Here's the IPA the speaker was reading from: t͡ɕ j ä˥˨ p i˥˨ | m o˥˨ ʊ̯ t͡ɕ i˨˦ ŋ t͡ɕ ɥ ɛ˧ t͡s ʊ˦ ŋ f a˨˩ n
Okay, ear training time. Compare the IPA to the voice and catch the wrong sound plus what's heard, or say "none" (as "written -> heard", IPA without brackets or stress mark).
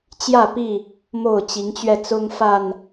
none